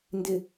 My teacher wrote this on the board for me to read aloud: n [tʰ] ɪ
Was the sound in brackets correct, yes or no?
no